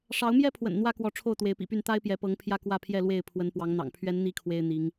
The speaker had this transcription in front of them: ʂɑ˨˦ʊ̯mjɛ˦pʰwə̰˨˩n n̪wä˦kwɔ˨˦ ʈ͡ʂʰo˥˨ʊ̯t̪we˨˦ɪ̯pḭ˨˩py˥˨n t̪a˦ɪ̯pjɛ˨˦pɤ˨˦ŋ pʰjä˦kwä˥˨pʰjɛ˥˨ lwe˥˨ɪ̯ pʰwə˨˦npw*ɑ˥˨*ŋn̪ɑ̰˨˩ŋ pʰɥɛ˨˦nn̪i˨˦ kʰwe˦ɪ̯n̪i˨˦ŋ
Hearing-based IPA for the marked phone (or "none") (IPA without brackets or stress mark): ɑ˨˦